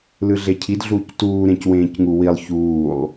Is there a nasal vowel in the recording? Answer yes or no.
yes